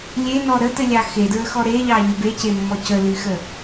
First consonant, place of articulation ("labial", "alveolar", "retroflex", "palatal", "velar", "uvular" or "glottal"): alveolar